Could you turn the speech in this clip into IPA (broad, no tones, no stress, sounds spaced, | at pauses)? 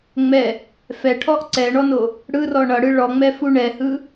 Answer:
ŋ͡m ɛ | f ɛ ʈʰ ɔ ʔ ǀ ɛ ɳ ɔ n o | ɽ ɯ r ɔ ɳ ʌ ɽ ɯ ɭ ɔ ŋ͡m ɛ f u ɳ ɛ h ɯ